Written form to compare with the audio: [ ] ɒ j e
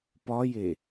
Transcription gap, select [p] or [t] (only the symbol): p